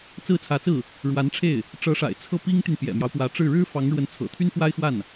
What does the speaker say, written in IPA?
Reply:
t͡sɹ̩˥˩t͡sʰä˧˥t͡sɹ̩˥˩ | ɻwa˧˥nʈ͡ʂʰe˥˩ɪ̯ | ʈ͡ʂɤ˧˥ʂa̰˨˩ɪ̯ t͡sʰɤ˥˩pi˥ŋt̪y˨n pjɛ̰˨˩mjɑ˦ʊ̯pwä˧˥ʈ͡ʂɻ̩˥˩ ɻɻ̩˥fɑ˧˥ŋɻwə˧˥nt͡sʰɤ̰˨˩ t̪ʰy˥nfwa˥ɪ̯xwa˥˩n

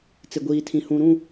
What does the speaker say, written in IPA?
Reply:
t͡sɪ˨ɡʷiː˨tʰĩ˨ hũ˨ɾũ˦˨

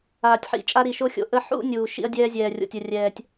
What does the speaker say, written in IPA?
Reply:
aː˨tʲħḭ˨ t͡ʃʼa˦ɾi˨ʃo˦xʲo̰˨ ʔə˦ ħṵ˦ nʲuː˨ ʃḭ˦ɐ̯dʲɛː˦zʲɛː˨rʲo̰˨tʲ ə˨rʲɛː˨tʲ

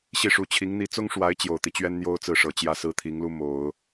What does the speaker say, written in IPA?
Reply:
ɕi˥˩ʂu˧˥t͡ɕʰi˧˥ŋ n̪i˧˥t͡sʊ˥ŋʂwa˧˥ɪ̯ t͡ɕjo˨˩ʊ̯t̪i˦t͡ɕɥɛ˥n n̪jo˥ʊ̯t͡sɹ̩˥˩ʂɤ˨˩ t͡ɕjä˥˧sɹ̩˥˩t̪ʰi˧˥ŋlu˥ mo˨˩˦ʊ̯

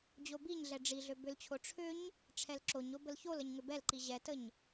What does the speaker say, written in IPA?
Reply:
d͡ʑobiɲɮɛ ɖ͡ʐiɮø bʏlt͡ɕʰo ʈ͡ʂʰʏɲ | ʈ͡ʂʰɛlǁoɲo bəlçoləɲ ŋʏbɛlǃi ʑɛtəɲ

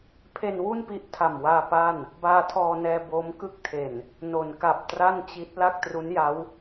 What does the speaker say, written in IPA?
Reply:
pʰe˧nwu˥˩npi˦˥ʔ tʰa˨˩mwaː˧ pa˥˩n | baː˧tʰɔː˧nɛː˧ bo˦˥m kɯ˦˥k̚tʰe˨˩n | no˩˦nka˨˩p̚tra˥˩nt͡ɕi˦˥t̚ la˥˩k̚tru˦˥nja˦˥w

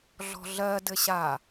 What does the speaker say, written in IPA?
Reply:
ɮɔ̤ɮɜ dɘɕa

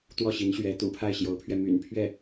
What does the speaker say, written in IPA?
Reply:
t̪wɔ˥˩ɕi˧˥nɕɥɛ˧˥ t̪ṵ˨˩pʰa˥˩ɪ̯ɕjo˧˥ʊ̯pʰɥɛ˧ my̰˨˩npʰɥɛ˥˩

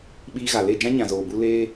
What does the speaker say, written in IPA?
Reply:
ɓiː˧ɣa˨le˦˨ d͡ʒã˦ɲã˨zoː˨bu˧ leː˦

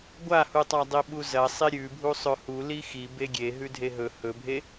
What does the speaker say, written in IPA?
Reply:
ɡʷahutˤa dˤiɓuzɐ sˤiɾʲʉbʱu sˤɵhu lixi beɡʲe ɦʉdʱeɦɵ hɵbʱe

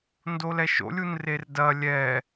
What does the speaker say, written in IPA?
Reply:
ndolɛʃo̰ lʲunrerdɐ lʲɛ

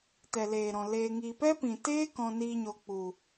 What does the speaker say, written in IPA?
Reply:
tɛ˨leː˨ɾɔ̃˨ leː˧ŋi˧ pɛ˦pĩ˨teː˦ kɔ̃˧niː˧ɲo˨k͡pu˨

